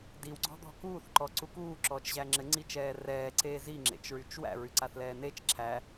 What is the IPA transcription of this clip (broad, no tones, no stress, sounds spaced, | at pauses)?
d i w ɡ͡ǀ ɔ̤ d̪ ɔ̤ k uː θ ǃ ɔ ǀ u k uː ǁ ɔː t͡ʃ ʑ æ ŋ͡ǁ ɘ ŋ͡ǀ i t͡ʃ ɛː r ɛː ǀ eː z i ŋ͡ǁ ḛ t͡ʃ ɹ y t͡ʃ w æ̰ ɹ y ǀ a θ l ɛː n e t͡ʃ ǁʰ æ